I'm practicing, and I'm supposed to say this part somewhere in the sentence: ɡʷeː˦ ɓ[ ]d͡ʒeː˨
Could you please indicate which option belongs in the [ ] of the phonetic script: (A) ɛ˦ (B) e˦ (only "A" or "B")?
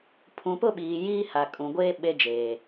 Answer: B